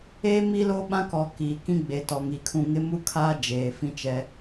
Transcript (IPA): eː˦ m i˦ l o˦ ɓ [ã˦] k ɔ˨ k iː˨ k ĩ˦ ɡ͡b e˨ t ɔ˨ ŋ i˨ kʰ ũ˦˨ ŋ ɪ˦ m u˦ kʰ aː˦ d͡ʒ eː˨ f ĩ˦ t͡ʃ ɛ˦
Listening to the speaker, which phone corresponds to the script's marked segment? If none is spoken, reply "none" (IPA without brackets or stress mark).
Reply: ã˦